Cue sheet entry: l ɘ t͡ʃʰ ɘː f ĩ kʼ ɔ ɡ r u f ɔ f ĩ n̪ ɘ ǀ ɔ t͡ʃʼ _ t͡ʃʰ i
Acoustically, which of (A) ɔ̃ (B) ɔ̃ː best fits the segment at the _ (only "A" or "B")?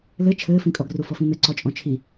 A